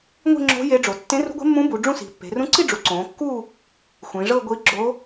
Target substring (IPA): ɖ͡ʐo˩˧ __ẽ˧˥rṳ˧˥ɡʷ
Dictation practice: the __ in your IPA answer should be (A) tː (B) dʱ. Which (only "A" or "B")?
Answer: A